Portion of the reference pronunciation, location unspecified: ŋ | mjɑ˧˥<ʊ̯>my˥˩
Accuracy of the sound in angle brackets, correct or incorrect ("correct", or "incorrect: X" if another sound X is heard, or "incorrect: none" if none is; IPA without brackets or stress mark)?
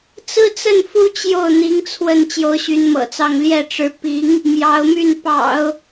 correct